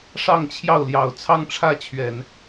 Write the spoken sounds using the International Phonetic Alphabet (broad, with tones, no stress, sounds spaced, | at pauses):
ʂ ɑ˥˧ ŋ t͡ɕʰ j ɑ˥˩ ʊ̯ l j ɑ˨˩ ʊ̯ t͡sʰ ɑ˥˧ ŋ ʈ͡ʂʰ ä˥˩ t͡ɕʰ ɥ ɛ˨˩˦ n